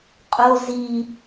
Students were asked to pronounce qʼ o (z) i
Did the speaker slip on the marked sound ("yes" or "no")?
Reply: no